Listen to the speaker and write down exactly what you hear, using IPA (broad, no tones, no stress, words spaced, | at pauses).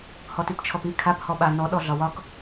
hɔtypt͡ʃʰɔpi kʰap hɔɓa nɔ ɗɔɮɒwɒk